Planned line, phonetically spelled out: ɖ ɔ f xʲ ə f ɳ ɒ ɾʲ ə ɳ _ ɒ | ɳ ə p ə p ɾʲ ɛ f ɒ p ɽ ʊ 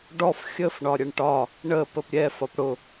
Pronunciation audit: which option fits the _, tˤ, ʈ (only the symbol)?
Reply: ʈ